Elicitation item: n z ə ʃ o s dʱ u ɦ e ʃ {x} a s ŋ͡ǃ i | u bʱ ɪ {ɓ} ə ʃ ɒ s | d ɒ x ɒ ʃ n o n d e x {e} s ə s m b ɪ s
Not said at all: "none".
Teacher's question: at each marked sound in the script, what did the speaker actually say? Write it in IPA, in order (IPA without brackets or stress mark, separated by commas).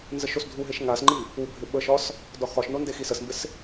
ŋ, ɓ, i